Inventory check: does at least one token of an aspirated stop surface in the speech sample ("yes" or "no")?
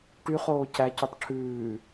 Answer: yes